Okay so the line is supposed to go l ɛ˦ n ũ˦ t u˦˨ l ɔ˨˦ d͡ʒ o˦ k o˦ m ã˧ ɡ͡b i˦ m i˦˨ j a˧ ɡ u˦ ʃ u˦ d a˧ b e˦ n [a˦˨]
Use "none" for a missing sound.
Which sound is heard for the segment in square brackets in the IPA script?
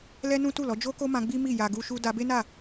a˦˨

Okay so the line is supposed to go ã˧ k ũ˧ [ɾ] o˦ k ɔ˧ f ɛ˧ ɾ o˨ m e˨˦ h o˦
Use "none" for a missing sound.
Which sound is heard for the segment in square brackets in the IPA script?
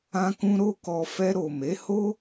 ɾ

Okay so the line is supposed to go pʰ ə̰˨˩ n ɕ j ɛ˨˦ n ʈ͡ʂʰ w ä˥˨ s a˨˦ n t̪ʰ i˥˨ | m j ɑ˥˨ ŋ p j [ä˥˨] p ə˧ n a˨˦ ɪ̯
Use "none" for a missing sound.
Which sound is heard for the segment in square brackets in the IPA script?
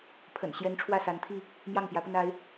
ä˨˦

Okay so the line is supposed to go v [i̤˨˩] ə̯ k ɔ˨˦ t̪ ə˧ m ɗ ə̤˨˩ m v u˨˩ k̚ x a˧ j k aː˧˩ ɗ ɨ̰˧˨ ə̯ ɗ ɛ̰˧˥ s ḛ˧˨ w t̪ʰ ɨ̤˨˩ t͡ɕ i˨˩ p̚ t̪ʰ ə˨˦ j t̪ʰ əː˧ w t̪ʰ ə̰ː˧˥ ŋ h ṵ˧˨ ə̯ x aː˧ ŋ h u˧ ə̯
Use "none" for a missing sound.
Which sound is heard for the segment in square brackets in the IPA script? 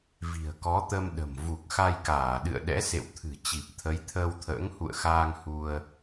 i̤˨˩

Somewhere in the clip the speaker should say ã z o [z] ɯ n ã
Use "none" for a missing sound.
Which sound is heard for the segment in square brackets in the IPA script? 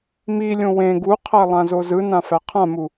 z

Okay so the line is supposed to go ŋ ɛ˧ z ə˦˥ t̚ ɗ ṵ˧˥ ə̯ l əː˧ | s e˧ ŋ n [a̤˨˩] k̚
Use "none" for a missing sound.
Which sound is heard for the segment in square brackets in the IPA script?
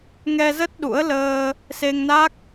a˦˥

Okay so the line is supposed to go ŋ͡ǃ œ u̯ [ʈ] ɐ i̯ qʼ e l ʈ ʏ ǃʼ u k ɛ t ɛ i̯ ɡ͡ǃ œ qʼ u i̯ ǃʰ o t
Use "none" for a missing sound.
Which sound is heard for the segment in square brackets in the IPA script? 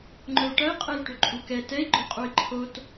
ʈ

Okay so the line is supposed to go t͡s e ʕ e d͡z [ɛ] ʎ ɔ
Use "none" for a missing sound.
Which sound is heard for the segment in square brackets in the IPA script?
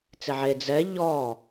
ɛ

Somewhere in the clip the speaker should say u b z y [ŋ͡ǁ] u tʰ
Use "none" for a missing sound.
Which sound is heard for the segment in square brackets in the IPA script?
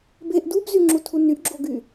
ŋ͡ǁ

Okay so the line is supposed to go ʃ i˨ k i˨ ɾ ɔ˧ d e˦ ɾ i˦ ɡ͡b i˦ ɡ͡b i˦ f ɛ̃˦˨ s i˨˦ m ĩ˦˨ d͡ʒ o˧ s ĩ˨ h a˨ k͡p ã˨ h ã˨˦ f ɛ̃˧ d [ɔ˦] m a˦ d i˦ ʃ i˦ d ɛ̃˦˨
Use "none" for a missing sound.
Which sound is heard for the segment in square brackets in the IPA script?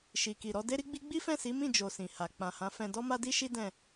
ɔ˦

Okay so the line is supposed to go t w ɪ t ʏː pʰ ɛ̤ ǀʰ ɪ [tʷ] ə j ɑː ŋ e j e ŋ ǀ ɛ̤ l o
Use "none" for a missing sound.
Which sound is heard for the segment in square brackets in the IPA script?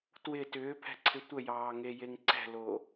tʷ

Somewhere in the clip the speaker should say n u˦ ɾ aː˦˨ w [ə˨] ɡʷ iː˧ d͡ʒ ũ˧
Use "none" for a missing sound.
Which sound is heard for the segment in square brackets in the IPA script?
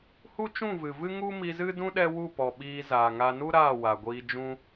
a˨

